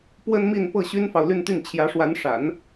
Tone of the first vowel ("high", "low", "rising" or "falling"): high